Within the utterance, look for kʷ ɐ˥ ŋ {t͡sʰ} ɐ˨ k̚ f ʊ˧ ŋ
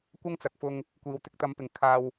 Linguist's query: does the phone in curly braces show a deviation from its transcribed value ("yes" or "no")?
yes